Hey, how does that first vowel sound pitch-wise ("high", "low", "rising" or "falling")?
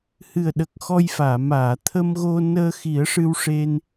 low